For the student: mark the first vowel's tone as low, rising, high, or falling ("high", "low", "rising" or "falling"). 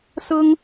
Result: high